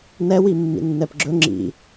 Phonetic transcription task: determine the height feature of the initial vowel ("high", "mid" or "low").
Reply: mid